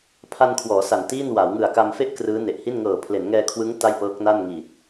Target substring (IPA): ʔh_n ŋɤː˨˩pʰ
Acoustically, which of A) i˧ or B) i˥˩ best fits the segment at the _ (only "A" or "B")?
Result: B